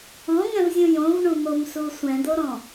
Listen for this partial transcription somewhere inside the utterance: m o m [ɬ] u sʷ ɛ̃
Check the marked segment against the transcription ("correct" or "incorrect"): incorrect